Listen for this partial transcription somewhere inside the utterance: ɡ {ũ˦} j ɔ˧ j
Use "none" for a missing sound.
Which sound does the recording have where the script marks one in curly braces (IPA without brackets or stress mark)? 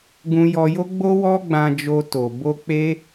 ũ˧